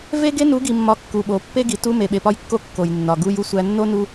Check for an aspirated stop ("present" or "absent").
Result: absent